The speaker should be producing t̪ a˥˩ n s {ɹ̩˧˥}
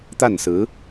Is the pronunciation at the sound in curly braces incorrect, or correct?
correct